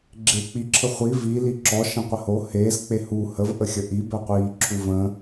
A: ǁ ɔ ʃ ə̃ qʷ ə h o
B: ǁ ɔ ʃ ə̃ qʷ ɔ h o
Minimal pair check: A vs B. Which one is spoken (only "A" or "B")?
A